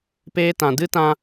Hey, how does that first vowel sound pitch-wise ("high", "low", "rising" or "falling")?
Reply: high